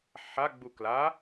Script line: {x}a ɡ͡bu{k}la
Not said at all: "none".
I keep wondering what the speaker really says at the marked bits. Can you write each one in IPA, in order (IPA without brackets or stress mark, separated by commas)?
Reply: ħ, k